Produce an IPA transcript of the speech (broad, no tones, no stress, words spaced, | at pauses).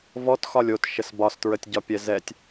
vɔtxɒlʲ otʃəs bɒstɹətʲɟɒpʲɛ zɛtʲ